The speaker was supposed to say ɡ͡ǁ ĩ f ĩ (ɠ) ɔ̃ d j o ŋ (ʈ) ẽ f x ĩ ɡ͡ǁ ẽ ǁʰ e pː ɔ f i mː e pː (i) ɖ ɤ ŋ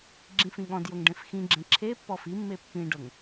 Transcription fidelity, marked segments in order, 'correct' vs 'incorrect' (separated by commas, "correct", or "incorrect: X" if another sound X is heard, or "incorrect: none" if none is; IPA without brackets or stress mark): correct, incorrect: ɖ, incorrect: ĩ